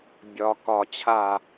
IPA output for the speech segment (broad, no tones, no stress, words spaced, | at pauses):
bʲɒ kɒ t͡ɕʰa